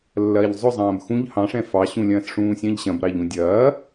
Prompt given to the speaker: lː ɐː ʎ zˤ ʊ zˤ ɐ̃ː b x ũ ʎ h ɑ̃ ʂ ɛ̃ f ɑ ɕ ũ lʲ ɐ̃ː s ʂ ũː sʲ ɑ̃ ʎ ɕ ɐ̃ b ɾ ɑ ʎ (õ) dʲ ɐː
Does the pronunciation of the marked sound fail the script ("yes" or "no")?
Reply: yes